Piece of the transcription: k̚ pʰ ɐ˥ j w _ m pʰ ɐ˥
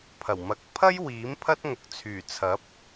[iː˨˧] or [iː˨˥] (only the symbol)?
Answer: iː˨˥